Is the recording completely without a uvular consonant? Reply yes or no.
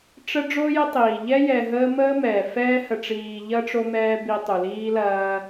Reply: yes